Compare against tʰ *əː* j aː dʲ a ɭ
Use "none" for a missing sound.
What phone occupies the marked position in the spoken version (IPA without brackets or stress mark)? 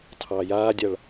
ɑː